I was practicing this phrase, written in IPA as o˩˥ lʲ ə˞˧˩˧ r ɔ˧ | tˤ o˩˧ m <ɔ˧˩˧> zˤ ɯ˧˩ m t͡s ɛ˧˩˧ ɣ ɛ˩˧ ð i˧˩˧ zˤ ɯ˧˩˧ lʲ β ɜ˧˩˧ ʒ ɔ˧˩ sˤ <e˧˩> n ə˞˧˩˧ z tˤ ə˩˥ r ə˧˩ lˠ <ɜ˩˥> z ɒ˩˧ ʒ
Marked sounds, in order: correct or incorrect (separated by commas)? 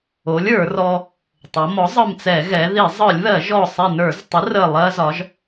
incorrect, correct, incorrect